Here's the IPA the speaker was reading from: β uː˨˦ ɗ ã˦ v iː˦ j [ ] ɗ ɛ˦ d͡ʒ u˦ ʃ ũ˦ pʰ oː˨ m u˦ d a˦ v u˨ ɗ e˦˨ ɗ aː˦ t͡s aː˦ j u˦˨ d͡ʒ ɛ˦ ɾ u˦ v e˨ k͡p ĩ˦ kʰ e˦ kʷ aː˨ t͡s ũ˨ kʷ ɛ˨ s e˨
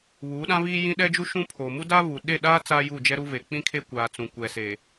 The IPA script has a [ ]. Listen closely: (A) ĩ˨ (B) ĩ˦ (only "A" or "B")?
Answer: B